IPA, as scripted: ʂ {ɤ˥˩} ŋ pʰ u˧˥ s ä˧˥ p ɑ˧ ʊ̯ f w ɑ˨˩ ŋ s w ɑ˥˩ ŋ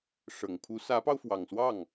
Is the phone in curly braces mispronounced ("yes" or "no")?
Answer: yes